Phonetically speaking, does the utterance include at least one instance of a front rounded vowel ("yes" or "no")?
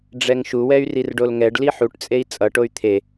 yes